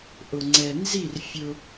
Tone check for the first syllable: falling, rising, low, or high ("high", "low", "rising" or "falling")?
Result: low